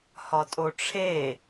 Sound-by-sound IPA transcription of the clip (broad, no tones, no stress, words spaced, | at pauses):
hɒtʼoʈ͡ʂʰe